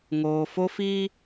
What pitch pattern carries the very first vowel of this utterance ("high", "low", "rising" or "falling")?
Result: low